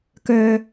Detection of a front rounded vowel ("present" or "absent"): present